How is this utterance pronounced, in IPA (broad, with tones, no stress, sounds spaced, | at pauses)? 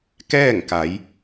k ɛː˥˨ ŋ k a˩˧ j